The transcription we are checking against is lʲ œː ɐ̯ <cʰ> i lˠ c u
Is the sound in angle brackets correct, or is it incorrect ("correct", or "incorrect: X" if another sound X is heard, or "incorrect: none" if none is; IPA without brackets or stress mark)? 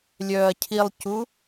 correct